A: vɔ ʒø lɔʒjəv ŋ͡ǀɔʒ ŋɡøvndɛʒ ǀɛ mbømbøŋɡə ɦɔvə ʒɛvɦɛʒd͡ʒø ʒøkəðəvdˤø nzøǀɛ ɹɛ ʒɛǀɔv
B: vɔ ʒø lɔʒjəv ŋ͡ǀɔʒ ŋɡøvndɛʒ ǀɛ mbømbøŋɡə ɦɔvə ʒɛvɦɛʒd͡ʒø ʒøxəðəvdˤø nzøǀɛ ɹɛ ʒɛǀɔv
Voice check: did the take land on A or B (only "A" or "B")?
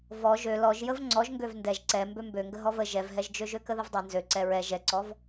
A